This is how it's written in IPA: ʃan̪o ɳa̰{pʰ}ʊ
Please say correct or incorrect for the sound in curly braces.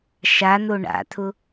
incorrect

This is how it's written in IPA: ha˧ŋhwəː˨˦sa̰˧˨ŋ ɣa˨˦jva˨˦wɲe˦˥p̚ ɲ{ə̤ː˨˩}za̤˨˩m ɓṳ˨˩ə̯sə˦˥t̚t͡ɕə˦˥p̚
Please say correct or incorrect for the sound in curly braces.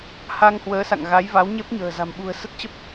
correct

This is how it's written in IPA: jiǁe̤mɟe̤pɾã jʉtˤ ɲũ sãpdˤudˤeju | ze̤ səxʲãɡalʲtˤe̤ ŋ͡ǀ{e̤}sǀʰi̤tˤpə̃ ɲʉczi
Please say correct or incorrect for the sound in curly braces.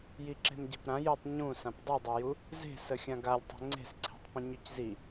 correct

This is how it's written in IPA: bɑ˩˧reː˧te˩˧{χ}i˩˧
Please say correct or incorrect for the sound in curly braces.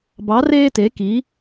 incorrect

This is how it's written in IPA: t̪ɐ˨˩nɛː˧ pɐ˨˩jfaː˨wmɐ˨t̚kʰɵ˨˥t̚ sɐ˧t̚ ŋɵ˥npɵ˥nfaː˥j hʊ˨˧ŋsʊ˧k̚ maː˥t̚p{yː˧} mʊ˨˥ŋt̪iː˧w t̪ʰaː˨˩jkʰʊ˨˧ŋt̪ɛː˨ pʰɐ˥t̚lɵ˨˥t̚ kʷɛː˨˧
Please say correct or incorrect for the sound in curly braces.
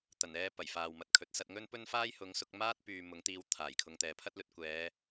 incorrect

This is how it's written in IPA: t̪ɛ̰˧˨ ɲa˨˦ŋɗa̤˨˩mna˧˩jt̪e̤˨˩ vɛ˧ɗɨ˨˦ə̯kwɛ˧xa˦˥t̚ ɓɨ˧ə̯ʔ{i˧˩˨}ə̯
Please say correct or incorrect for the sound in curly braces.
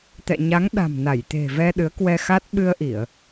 correct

